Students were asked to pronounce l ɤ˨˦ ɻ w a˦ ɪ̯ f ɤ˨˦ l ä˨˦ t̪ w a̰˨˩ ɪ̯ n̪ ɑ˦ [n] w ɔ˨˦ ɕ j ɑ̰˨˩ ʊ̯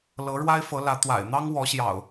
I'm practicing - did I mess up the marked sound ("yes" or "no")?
yes